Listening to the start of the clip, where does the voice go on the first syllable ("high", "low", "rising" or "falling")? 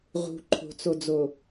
low